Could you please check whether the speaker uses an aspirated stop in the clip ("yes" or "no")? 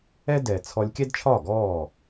yes